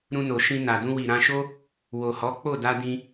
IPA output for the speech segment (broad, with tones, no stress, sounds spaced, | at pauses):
ɾ ũ˧ n o˨ ʃ ĩ˧ n a˨ d ũ˧ w i˨ ɾ ã˧ ʃ o˦ | w o˨ h ɔ˨˦ k͡p o˦˨ d a˧ d ĩ˧